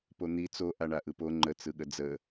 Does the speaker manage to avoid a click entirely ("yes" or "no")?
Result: no